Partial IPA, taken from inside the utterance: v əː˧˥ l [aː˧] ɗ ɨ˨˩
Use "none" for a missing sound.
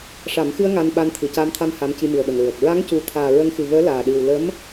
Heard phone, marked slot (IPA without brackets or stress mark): aː˨˩